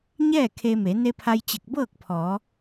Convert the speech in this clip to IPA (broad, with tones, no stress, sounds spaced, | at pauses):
ɲ ɛː˥˨ kʰ e˧ m e˩˧ n e˧ pʰ a˧ j t͡ɕ e˧˩ k̚ b ɤː˥˨ k̚ pʰ ɔː˩˧